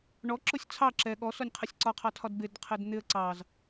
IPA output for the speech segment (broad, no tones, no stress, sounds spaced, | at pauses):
ɳ ɔ ǁ ʊ sʲ t͡sʰ ɑ ǁ ɛ ɠ ɔ s ɔ nʲ qʰ ɪ sʲ ǀ ɒ qʰ ɑ tʰ ɒ d b ɪ d qʰ ɪ d n̪ ɪ ə̯ ǀ ɑ z